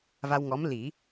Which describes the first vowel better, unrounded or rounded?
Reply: unrounded